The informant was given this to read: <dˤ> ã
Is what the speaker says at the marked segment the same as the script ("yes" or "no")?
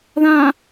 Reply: no